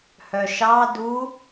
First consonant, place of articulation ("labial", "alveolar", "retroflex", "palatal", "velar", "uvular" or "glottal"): glottal